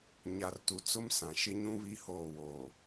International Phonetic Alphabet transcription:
ɲ a˨ r t u˨ t͡s ʊ˦ m s ã˨ ʃ ɪ˦ ɲ ũ˦ β i˦ h oː˦˨ w oː˨

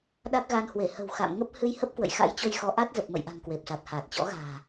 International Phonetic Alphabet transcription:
ɗ a˦˥ k̚ ɣ a˧ n h w e˧˩ h ə̤˨˩ w x a̰˧˨ m ŋ ə˦˥ p̚ h ɨ˧ j h ə˦˥ p̚ k w ə̰˧˨ j x a̰˧˥ j t͡ɕ o˧ j x ɔ˨˦ ʔ a˦˥ t̚ z ə˨˩ p̚ m ə̰˧˨ j ʔ a̤˨˩ ŋ k w e˨˩ p̚ s a˨˩ t̚ h aː˨˩ t̚ t͡ɕ ɔ̰˧˥ ɣ a̤ː˨˩

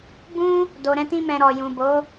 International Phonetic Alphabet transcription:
b ũ˦ | d o˨ ɾ ɛ̃˧ t ĩ˧ m ɛ̃˨ ɾ ɔ˨ j ũ˨ b o˨˦

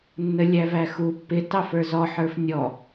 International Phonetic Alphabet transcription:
nː ə lʲ æ v æ x u pː ɪ t ɑ f ə˞ z ɔ ħ ə˞ f nʲ ɔ

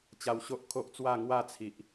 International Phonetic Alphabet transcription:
t͡ɕ a˧ w ɕ o˦ ʔ kʰ o˦ ʔ t͡s w a˥˧ ŋ w a˥˧ t͡sʰ i˨ ʔ

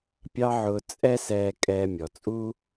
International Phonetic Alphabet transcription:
pʲ ɑ˥ ʕ ʊː˧ t͡sʼ ɛ˥ s ɛː˧ kʼ ɛː˧ mʲ ɔ˩ t͡sʼ uː˥

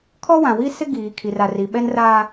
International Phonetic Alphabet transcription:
kʰ ɔ˦ w ã˨ w i˦ s ɪ˦ ɡ iː˨ kʰ i˨ r a˨ r i˨ ɓ ɛ˦ n r aː˦

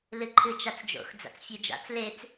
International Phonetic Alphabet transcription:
l ɨ ǃʰ ɨ t͡ʃ a t͡s d͡ʒ o̰ x d͡z a̰ t͡s fʲ ʉ d͡ʒ a̰ t͡s l e t͡s

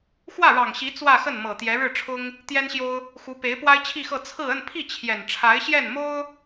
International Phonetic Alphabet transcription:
x w ä˥˩ ɻ ɑ˨˩ ŋ ɕ i˧˥ t͡s w ä˥˧ x ə˥˩ n m ɤ˨˩ t̪ j ɛ˧˥ ɻ ɻ̩˥˩ ʈ͡ʂʰ ʊ˥ ŋ | t̪ j ɛ˥ n ɕ j o˥ ʊ̯ | x u˧˥ p e˧˥ ɪ̯ p w a˥ ɪ̯ t͡ɕʰ i˥˧ x ɤ˥˧ t͡sʰ ɹ̩˥˧ ə˥˧ n pʰ i˥˩ t͡ɕʰ j ɛ˨˩ n ʈ͡ʂʰ a˧˥ ɪ̯ ɕ j ɛ˥˩ n m o˥ ʊ̯

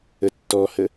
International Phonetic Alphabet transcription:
ə tː ɔ h ə

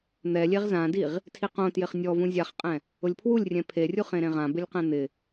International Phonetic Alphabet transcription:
n̪ ɛ lʲ e ʁ z ã d i ʁ | tʰ i q õ t j ɪ χ nʲ ɔ v ũ zʲ a χ qʼ ɛ̃ | ʊ lʲ pʰ w u lʲ rʲ ɛ̃ pʰ e rʲ u χ ẽ ɾ ẽ ʁ ã b ɪ lʲ q ɛ̃ n̪ ɪ

